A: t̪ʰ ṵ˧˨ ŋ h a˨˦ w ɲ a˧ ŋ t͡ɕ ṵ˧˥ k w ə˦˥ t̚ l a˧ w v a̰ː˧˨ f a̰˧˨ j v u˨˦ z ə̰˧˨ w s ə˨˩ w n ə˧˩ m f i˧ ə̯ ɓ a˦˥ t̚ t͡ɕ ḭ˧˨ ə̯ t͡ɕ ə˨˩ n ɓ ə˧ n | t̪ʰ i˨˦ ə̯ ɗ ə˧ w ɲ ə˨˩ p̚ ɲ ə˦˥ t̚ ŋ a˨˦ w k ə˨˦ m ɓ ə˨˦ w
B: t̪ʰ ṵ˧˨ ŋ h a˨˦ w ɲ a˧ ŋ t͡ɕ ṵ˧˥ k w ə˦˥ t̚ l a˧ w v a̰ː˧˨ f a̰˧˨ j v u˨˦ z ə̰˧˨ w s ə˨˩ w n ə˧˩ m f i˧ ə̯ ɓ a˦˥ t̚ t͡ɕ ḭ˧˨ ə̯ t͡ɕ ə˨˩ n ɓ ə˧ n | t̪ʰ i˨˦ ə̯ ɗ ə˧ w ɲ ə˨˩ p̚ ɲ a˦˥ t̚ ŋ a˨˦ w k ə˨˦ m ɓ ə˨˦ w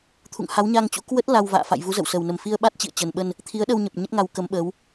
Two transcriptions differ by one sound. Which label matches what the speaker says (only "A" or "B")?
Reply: A